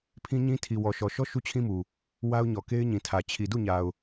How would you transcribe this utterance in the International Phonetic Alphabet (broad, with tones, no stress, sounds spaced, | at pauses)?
pʰ ĩ˦ ɲ ĩ˦ tʰ i˨ w ɔ˨ ʃ ɔ˨ ʃ ɔ˦ ʃ u˦ t͡ɕʰ ĩ˦ m u˨ | w a˦ ʊ̯ ɲ ɔ˨ k e˦ ɪ̯ ɲ ĩ˨ tʰ ä˨ t͡ɕʰ i˨ d u˦˨ ɲ a˨ ʊ̯